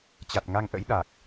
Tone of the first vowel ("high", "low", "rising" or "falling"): low